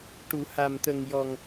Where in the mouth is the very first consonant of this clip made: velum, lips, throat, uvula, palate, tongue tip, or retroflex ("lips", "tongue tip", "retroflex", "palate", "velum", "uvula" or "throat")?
retroflex